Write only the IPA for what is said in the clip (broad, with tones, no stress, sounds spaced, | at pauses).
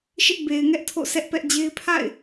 ʃ ɪ˦ ʔ b e˨ ɪ̯ ŋ ɛ˦ ʔ tʰ o̰˦˨ s ɛ˦ ʔ p ɛ˦ ʔ d͡ʑ e˦ ɪ̯ pʰ a̰˦˨ ɪ̯